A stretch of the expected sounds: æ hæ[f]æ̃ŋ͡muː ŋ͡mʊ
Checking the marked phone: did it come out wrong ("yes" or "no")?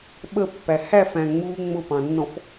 no